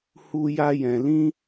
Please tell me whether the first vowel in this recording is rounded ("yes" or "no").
yes